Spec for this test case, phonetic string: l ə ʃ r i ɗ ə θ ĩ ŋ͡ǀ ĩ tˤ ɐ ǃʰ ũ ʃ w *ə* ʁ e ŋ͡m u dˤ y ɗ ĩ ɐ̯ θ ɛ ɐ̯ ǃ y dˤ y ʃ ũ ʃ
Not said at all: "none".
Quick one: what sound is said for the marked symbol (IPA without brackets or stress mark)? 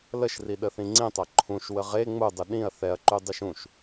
ə